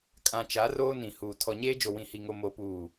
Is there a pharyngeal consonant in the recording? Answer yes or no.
no